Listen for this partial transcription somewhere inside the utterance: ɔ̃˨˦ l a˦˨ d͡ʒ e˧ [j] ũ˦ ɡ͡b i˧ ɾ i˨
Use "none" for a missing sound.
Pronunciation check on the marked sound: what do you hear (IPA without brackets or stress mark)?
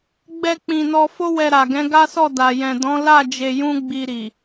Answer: j